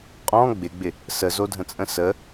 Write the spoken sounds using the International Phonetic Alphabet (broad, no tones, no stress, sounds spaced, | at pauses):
qʼ ɔ̃ ɡ͡b ɪ ɡ͡b ɪ | s ə z o dʱ ə̃ t͡sʼ ə̃ s ə